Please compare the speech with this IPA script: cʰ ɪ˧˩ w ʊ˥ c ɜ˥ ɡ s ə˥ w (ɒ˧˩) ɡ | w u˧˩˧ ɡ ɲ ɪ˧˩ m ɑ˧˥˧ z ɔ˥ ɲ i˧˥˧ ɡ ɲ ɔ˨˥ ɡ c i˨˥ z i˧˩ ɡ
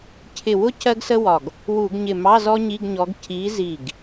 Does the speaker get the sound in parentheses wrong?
no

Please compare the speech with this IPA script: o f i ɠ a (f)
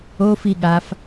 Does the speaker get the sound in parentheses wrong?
no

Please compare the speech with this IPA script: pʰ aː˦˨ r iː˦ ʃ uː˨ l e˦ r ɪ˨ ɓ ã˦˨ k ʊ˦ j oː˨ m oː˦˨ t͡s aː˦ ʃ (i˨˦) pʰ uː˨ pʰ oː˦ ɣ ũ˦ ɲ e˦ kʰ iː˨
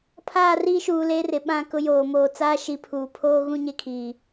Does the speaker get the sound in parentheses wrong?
no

